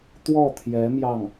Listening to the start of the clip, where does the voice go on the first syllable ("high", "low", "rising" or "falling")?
falling